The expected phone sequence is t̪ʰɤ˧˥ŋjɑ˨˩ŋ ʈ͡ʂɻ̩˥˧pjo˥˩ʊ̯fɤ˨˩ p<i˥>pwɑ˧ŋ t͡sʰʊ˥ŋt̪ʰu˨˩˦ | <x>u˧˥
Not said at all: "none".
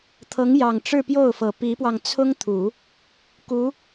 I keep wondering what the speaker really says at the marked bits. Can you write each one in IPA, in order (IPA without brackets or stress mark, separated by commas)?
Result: i˧˥, k